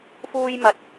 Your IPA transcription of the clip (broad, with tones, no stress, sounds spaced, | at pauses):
f uː˥ j m ɐ˧ t̚